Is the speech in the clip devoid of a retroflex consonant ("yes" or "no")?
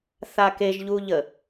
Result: yes